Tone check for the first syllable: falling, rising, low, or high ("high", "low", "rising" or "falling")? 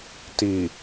low